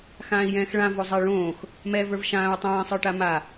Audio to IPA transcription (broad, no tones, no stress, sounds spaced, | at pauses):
x ãː i̯ j ɛ̃ː x ɭ ã v o zˤ ɛ ɭ õː x | m ɛ v ə˞ v ʃ ãː u̯ tˤ ɛ̃ː sˤ ə˞ ʈ a m a